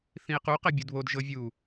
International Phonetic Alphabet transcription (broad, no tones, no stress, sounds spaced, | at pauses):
θ ĩ e̯ q u q ɛ bʲ u d β o d ʒ ɤ vʲ u